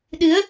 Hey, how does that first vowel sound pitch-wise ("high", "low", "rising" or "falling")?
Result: rising